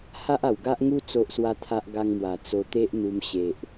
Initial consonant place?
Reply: glottal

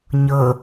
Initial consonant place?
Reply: palatal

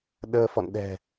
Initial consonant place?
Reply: alveolar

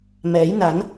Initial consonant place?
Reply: labial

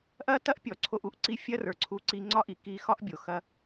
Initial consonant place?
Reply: glottal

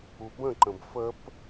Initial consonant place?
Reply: labial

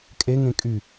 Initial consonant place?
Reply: velar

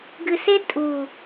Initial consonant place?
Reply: velar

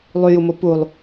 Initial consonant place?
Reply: alveolar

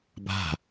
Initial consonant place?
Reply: labial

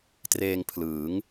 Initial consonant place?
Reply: alveolar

